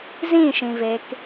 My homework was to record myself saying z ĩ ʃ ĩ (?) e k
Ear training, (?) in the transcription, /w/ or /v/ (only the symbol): v